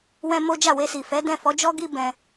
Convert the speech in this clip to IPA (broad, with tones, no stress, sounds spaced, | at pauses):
w ɛ̃˦ m o˦ d͡ʒ a˦˨ w e˧ s i˨ f ɛ˨˦ d ɛ̃˦˨ f ɔ˨˦ d͡ʒ ɔ˦ ɡ i˦ b ɛ̃˧